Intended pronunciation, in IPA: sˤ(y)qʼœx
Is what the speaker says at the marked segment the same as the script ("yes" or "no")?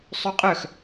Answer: yes